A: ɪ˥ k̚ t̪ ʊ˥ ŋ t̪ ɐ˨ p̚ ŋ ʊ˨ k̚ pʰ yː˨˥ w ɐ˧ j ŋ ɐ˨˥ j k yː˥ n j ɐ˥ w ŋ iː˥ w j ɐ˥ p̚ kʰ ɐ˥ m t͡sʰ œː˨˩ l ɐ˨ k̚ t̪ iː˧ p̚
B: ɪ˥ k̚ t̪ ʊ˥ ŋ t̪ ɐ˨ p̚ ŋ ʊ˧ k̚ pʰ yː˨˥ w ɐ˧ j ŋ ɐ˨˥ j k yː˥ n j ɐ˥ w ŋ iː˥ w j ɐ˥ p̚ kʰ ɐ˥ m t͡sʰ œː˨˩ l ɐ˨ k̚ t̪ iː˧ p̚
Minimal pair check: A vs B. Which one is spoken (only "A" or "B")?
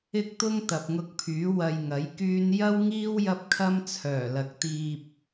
B